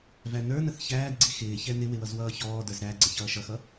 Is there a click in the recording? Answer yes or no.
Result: yes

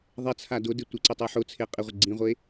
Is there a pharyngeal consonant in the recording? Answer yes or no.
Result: yes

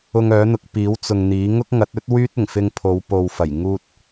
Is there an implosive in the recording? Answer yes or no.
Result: no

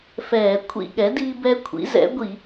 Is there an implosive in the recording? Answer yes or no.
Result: yes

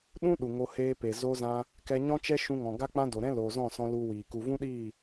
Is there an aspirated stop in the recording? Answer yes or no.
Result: no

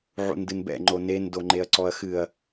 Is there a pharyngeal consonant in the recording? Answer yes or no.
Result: yes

